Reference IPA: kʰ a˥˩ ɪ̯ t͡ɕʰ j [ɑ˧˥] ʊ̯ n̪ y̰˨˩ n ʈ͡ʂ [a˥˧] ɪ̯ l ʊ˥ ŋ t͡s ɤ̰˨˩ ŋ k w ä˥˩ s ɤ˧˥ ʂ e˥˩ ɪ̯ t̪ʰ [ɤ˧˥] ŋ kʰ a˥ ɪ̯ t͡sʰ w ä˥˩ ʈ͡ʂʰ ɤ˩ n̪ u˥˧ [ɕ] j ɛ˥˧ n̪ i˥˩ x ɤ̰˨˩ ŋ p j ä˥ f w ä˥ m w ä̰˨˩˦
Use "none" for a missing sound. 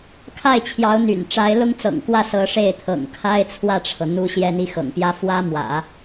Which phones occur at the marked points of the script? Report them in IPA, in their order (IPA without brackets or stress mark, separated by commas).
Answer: ɑ˧˥, a˧˥, ɤ̰˨˩, ɕ